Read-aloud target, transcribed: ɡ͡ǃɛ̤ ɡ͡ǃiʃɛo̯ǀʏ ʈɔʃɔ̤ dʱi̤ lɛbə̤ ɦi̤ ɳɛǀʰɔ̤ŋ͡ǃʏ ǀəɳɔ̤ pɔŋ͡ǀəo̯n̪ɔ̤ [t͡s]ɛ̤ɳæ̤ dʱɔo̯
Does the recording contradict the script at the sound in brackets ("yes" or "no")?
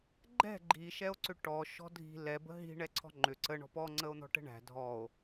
yes